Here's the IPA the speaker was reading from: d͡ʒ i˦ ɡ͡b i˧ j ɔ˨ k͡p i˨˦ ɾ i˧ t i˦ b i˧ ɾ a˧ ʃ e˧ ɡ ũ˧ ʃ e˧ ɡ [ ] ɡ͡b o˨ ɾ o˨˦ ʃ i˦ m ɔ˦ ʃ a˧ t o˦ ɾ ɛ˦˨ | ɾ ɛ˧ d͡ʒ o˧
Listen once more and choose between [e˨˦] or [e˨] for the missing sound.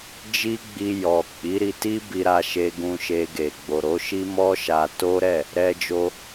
e˨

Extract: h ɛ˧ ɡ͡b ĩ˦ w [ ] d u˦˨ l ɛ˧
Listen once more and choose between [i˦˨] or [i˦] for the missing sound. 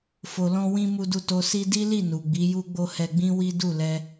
i˦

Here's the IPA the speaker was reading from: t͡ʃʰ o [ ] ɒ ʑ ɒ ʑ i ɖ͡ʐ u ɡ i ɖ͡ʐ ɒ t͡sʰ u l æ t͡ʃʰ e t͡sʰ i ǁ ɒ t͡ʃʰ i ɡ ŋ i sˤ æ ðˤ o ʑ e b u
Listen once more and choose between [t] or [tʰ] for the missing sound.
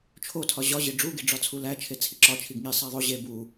tʰ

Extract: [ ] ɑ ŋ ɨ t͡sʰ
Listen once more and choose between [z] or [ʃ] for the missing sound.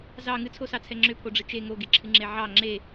z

